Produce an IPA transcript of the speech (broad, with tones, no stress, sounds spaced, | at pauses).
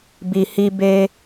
b i˨ h i˧ b e˧